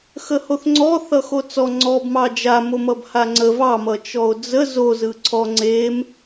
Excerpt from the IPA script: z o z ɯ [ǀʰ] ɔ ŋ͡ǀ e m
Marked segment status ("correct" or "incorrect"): correct